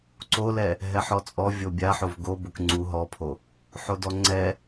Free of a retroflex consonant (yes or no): yes